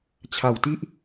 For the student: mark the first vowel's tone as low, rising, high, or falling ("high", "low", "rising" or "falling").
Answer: low